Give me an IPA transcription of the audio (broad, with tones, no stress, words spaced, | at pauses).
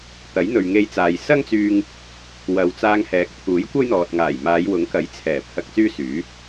t̪ɐ˨˥jn̪ɵ˨ɥŋe˧jt͡saː˨j sɐ˥ŋt͡syː˧ŋ | wɐ˨wt͡saː˧ŋhɛː˨˥k̚ t̪ʰuː˨˥jkʷɐ˥jn̪ɔː˨t̚ŋaː˨˩j maː˨˧jwʊ˨˥ŋkɐ˨˥j t͡sʰɛː˨˩ pʰɐ˧k̚t͡syː˥ syː˨˥